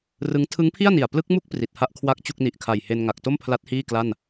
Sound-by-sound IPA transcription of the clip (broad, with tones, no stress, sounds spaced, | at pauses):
r ɯ˦˥ ŋ tʰ ɯ˦˥ ŋ pʰ i˥˩ a̯ n i˨˩ a̯ p l ɯ˦˥ k̚ m u˥˩ k̚ p r i˨˩ t̚ h a˥˩ ʔ kʰ w a˥˩ k̚ t͡ɕ u˥˩ k̚ n i˨˩ ʔ kʰ a˨˩ j h e˧ n ŋ a˨˩ k̚ t o˥˩ m pʰ l a˦˥ t̚ h iː˥˩ k l a˥˩ n